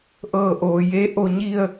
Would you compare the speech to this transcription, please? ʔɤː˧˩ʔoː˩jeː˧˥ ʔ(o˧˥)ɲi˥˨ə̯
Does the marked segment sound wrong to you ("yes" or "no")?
yes